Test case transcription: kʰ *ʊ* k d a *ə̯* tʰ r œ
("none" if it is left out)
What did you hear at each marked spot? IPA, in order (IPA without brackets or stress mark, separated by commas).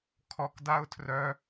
ɔ, ʊ̯